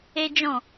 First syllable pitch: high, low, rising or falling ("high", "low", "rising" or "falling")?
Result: high